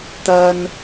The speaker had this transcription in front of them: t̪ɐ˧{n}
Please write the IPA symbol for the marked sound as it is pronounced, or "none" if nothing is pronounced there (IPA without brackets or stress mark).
n